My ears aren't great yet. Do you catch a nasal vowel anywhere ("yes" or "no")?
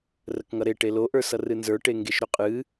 no